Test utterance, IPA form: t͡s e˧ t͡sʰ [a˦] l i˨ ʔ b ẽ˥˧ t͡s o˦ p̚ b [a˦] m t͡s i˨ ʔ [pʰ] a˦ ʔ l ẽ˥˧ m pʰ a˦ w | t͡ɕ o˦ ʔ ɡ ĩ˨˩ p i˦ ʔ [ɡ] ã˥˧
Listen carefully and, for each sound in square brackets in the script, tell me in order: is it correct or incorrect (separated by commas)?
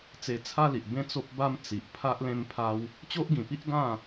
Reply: correct, correct, correct, correct